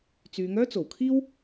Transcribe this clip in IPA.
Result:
t͡s yː˨˧ ŋ œː˥ t͡s o˨˩ w kʰ iː˥ w

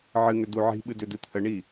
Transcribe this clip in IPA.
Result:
ʕ ɨ ŋ ʏ d u ʕ i̤ ɓ ɨ d ʏ d ɨ t̪ʰ ə ɳ i

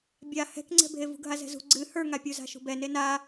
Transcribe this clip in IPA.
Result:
bʲ a h ɛ̤ k ŋ͡ǀ ɛ̤ bʱ e v ṳ ɡʱ a z ɛ̤ z ṳ ɡ͡ǀ ɨ h ə˞ ŋ a pʲ u z a̤ ʃ ṳ b ɛ n e n a

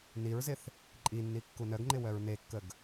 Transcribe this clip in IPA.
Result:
n i ɹ z ɪ θ | ǃʼ i nː i kː u n œ ɡ ŋ͡ǃ ɪ w œ ɹ n e kː ə ɡ

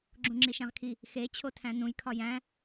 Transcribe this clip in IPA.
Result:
ɡ͡ǁ ũ ŋ͡ǁ i ʃ æ̃ ʁ kʰ i | x e t͡ɕʰ o tʰ æ̃ n ũ j kʰ ɒ j æ̃

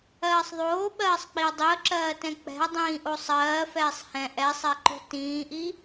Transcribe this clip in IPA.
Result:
ɜː sˤ ðˤ oː ɓ ɜː sˤ k͡p i ə̯ dˤ i ə̯ ǁ ɜː t ɛ̃ k͡p ɛ̤ ə̯ dˤ ĩː ʔ o sˤ ɜː f ɛː sˤ h ɛ̃ ʔ ɛ sˤ ɛ ǃ o̤ t ĩː ʔ i

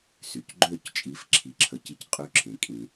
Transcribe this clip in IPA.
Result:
s y˩ c ɡ͡ǃ ø˥˩ c t͡ʃʼ i˩˥ f ǁʰ i˩˥ ǁʰ ə˧ c i˥˩ c qʼ y˥˩ ǁʰ ẽ˩ kʼ ĩ˨˩˦

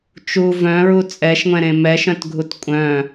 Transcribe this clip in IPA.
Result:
t͡ʃ u v œ̃ ɹ u t͡sʼ ɛ ʃ ŋʷ ɛ̃ ɾ ẽ m ɛ ʃ œ̃ t ɡʱ u t kʷʼ œ̃

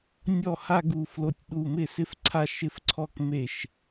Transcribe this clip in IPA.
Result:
nʲ ɔ˥˩ h a˥˧ ɡ u˧˩ f l o˧˩ tʲ ɗ u˧˩ m ɪ˥˩ s ɪ˥˧ f ǀʰ a˥˧ ʃ ɪ˥˩ f ǀʰ ɔ˥˧ k m e˥˩ ʃ

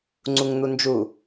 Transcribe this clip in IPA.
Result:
ŋ͡ǀ u ŋ n̪ u n d͡ʒ u

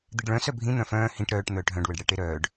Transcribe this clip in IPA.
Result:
d̪ i ɖ ɭ œ̃ s œ bʱ ĩ n̪ œ̃ f œ̃ː h ĩ ʈ ɾ œː ʈ n̪ œː ʈ ɦ œ̃ ɖ w ə ɖ ɽ ɛ ʈ e ɾ œː ɖ

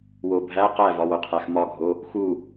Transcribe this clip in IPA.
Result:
w o bʱ æ q æ v ɒ w o qʰ æ x m ɒ ɡʱ o | x u

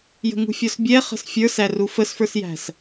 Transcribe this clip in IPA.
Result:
j ə̤ ŋ ṳ fʲ ɔ s bʲ ɛ χ ə̤ s fʲ ə˞ s æ r u f ə s f ə˞ s j æ̤ s

